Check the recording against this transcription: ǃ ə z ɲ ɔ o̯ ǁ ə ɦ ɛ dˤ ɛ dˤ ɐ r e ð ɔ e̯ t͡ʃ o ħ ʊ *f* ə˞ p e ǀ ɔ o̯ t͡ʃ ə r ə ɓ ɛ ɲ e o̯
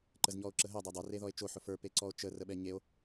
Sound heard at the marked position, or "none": f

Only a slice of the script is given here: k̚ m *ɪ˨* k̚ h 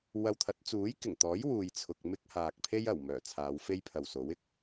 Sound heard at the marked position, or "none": ɪ˥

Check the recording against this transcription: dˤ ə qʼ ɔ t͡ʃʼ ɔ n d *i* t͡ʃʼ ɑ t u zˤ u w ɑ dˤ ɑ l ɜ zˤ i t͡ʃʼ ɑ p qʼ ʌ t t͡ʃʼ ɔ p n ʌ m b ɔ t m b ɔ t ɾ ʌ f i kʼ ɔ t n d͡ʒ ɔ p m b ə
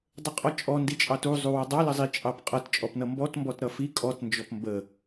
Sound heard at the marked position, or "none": i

